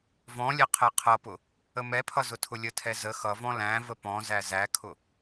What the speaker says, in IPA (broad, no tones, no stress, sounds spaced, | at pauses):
v ɔ̃ lʲ ɛ qʰ ɛ qʰ ʌ p ʊ | ə m ɛ pʰ ʌ z ʊ tʰ ʊ lʲ ə tʰ ɛ z ə x ʌ v ɔ̃ l æ̃ v ə p ɔ̃ z æ z æ kʰ ʊ